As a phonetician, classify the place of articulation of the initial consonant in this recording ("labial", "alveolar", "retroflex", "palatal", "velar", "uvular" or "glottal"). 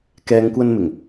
velar